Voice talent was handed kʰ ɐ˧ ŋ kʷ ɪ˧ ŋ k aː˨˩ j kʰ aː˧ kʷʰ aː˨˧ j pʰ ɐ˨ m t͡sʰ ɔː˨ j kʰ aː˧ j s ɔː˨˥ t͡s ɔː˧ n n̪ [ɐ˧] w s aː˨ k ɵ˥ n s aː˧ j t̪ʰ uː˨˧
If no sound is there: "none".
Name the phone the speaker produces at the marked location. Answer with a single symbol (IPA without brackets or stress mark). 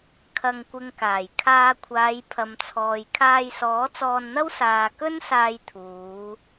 ɐ˥